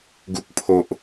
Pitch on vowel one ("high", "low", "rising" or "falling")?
low